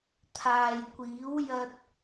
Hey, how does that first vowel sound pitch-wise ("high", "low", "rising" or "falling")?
low